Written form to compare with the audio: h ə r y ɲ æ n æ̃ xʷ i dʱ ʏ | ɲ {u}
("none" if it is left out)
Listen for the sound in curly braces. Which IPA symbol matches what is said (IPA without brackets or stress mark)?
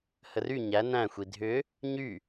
y